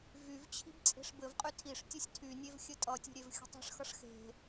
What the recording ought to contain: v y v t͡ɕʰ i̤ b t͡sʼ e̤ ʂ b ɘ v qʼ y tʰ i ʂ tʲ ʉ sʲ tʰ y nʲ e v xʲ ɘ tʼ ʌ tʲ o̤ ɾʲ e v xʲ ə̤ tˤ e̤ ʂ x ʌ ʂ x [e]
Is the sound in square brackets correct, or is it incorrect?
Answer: incorrect